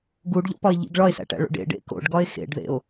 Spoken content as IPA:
ɡ u ɖ ʎ o̰ p ɒ e̯ ʎ ḭ ɡ ɭ ɒ e̯ s æ̰ ʈ æ̰ ɭ o̰ ɖ ḛ ɖ ḛ k o̰ ɖ ɡ ɒ e̯ x ḛ ɖ ð ḛ o̯

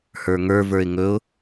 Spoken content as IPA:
h ə˞ ŋ ə˞ v ə˞ ɪ̯ ŋ ɵ ʊ̯

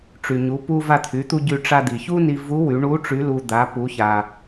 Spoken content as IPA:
ʈ͡ʂ y˩ ɲ u˩˧ p u˧ v a˧ t̪ʰ y˩˧ t̪ u˧ ɟ y˧ ʈ͡ʂ a˧ d̪ i˩ ç u˥ n i˧ v u˧˥ w y˩˧ ɳ u˧˥ ʈ͡ʂ y˧˥ l u˧ d̪ a˩˧ p u˩˧ ç a˩

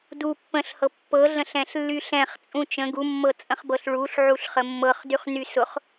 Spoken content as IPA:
d u pː ə̃ ɬ h ɤ pː ɤ ɮ ə̃ ɬ ɛ̃ ɬ lː y ɬ ɛ̃ χ t͡sʼ ũ t͡ʃ ə̃ ɡ u mː ɤ t͡sʼ ə̃ χ b ɤ ɬ ɭ u ɬ ʕ u ɬ χ ə mː ɤ χ d y χ n y s ʊ χ

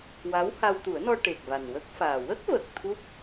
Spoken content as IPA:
w a˧˥ w h a˧ w t̪ u˨˩˦ ə̯ n ɔ˧ ʈ e˨˩ k̚ v a˨˩ n w ə˦˥ k̚ f aː˨˩ w ə˦˥ k̚ v ə˨˩ k̚ t̪ʰ u˦˥ p̚

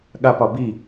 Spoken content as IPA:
ɠ a p ɒ b i

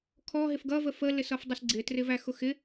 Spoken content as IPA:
kʰ ɔ ɦ ɪ f ɡ ʌ v ə f ə l ɪ s ʌ f dˤ ə s ɡ͡ǀ ɪ t r ɪ v æ x ʊ x ɪ

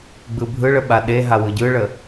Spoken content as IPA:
ɡ͡b ɯ bʱ ɯ ɭ ə ɓ a ɗ e ɦ a w ɯ ɟ ɯ ɭ ə

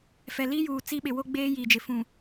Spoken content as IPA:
f ɛ˨ l i˦ j uː˨ t͡s i˦ ɓ ɪ˨ w o˦ ɡ͡b eː˦ j i˨ d͡ʒ ɪ˨ f ũ˨

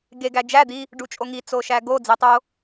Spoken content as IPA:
ɡ e ɡ æ d͡ʒ æ d̪ i | ɖ u t͡ʃʼ o ŋ i t͡s o ʃ æ ɡ o d͡z i tˤ o

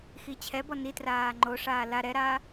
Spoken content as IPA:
x i t͡ɕʰ ɛ b ɔ n i t r aː ŋ͡ǃ o ʂ aː l a ɾ ɛ ɾ aː

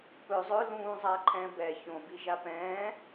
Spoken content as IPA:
p ɵ zˤ ɵ l ũː zˤ aː ǃʰ ɛ̃ː b ɛ ç õ b i ʒ a p ɛ̃ː

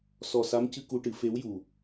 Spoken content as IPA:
s ɔ˨˩ s a˧˥ m c ɨ˧ k u˧ ʈ ɨ˨˩˦ f e˧˥ w j u˨˩

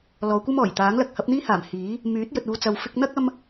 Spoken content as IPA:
l ɔː˨˧ kʷ ɐ˥ m ɔː˨˩ j t̪ aː˨˥ ŋ l ɐ˧ k̚ h ɐ˨˥ p̚ n̪ iː˥ h aː˨˩ m h iː˨˥ | m yː˨˥ t̚ j ɵ˨ t̚ uː˨ t͡s ɐ˨ w f ɪ˧ k̚ n̪ ɐ˥ k̚ ɐ˥ m

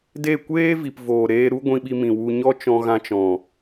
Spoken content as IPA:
d e˦˨ kʷ eː˦ v i˨ p v oː˨ ɾ eː˧ ɾ u˦ ɡʷ ĩ˧ ɓ i˧ m ĩ˨ w u˧ ɲ ɔ˦ t͡ʃ ɔ̃˧ ɣ ã˧ t͡ʃ ɔ̃˨

